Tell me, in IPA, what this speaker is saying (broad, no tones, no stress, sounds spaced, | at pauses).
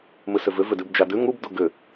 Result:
m ɨ s ʏ v ʏ v ʏ d ʉ b d͡ʒ a d ʉ ŋ u b d u ɡ ʏ